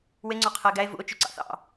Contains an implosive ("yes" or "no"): no